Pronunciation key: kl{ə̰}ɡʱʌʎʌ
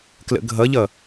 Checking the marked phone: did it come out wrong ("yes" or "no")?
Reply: no